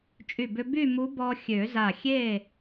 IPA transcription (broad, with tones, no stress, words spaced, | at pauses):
t͡ʃʼy˧˩bʏ˧ by˥˨ mu˧˥ bɔ˧ xʲø˨˩˦za˧˩xʲe˥˨